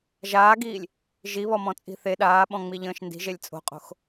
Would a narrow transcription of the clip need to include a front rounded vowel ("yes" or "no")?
no